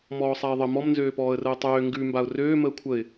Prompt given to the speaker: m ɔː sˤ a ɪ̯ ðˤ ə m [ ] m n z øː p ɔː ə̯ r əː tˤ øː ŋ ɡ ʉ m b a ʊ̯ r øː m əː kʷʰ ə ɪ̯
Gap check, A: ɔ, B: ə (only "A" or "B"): A